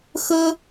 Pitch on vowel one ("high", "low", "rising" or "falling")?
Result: high